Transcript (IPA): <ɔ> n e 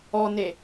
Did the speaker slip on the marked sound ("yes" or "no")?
no